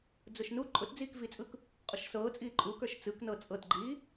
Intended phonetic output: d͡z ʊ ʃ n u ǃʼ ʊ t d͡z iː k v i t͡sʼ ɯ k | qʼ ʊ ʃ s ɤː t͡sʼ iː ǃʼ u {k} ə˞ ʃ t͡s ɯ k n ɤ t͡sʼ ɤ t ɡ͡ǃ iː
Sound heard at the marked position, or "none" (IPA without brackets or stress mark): k